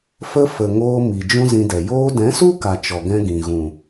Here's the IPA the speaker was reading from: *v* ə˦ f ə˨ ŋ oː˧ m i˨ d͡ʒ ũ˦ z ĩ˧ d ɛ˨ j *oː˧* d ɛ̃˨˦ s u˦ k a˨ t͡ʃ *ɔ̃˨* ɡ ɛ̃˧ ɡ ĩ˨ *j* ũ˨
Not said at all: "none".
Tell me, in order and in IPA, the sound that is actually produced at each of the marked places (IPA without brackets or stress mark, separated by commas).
f, oː˧, ɔ˨, ɣ